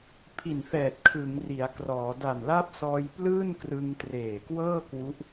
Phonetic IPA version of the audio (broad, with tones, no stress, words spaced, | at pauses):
pʰi˨˩nfɛː˨˩t̚ kʰɯ˩˦ŋri˩˦a̯krɔː˩˦ da˨˩nla˦˥p̚ sɔː˧jplɯː˥˩nkrɯ˧ŋ treː˨˩kwɤː˥˩kwu˦˥ʔ